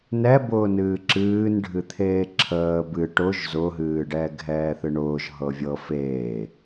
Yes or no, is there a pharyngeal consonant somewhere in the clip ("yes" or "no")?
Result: no